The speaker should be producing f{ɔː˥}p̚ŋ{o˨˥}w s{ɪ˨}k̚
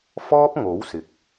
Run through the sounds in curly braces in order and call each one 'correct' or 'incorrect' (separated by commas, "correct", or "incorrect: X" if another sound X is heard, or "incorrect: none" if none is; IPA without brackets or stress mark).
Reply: correct, correct, correct